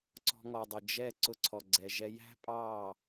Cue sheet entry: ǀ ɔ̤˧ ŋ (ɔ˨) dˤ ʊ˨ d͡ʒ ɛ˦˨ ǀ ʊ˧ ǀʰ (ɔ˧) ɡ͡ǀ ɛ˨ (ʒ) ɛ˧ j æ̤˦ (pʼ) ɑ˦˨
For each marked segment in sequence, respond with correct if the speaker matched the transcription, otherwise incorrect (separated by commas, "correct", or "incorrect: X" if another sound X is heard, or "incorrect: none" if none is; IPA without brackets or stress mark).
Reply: correct, incorrect: ɔ˨, correct, correct